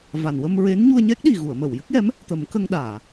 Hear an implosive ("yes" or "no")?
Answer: yes